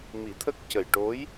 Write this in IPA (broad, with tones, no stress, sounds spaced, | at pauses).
m i˨˩˦ t̪ʰ ə˦˥ k̚ c ə˨˩ j ʈ o˧˥ j